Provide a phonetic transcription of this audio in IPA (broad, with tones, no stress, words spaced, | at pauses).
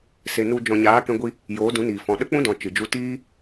se˨nu˧ d͡ʒɔ̃˨ɲaː˨˦ kɛ̃˦ɡʷi˦ | joː˨˦dũ˨˦niː˨fɔ̃˨ ɗə˦k͡pũ˦dɔ̃˨ t͡ʃɨ˨d͡ʒu˦ tiː˦